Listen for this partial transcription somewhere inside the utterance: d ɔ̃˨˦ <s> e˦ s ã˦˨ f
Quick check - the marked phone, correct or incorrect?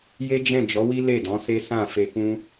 correct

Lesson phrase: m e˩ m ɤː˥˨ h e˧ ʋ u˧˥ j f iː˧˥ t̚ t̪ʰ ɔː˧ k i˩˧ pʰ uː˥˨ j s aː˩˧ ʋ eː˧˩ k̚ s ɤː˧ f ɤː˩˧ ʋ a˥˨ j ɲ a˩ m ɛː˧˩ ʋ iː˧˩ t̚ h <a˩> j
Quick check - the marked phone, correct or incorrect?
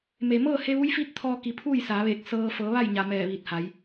incorrect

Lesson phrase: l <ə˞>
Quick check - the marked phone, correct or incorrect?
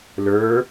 correct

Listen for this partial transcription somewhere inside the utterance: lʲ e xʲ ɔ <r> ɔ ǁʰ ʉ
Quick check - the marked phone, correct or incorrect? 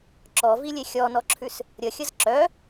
incorrect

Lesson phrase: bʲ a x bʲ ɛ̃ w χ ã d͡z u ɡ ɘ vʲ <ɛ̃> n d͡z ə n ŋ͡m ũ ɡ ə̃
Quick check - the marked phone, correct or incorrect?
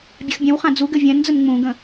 correct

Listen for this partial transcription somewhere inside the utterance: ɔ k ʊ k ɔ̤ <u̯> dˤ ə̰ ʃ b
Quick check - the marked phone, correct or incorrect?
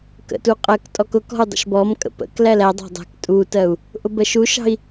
correct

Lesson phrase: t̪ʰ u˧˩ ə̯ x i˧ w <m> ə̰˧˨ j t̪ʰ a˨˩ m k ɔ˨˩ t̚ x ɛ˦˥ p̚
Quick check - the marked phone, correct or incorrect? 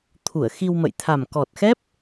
correct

